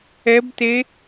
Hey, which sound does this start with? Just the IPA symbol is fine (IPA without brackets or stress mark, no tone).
ɛ